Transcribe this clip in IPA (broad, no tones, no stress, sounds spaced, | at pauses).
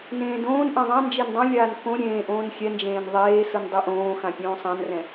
n ẽː d õː n ʔ ɛ̃ ðˤ ã n d͡ʒ e n dˤ õ lʲ aː n k õ ɾʲ ẽː ʔ õː n xʲ ɛ n d͡ʒ ẽː n ðˤ eː s ɯ n dˤ i ʔ õː x ã pʲ õː sˤ ã n r ɛ̃